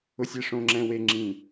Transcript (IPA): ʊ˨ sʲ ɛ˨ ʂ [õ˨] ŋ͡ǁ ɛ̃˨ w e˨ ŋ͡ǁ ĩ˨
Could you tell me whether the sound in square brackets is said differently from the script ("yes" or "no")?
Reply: no